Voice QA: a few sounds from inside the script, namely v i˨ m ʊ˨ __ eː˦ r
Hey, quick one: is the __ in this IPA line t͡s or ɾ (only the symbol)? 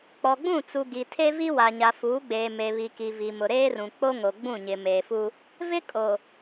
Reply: ɾ